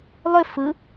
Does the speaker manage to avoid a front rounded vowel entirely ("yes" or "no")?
no